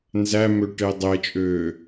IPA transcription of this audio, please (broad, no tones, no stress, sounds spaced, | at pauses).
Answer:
n z æ m ø ʈ e dˤ e t͡ʃʼ øː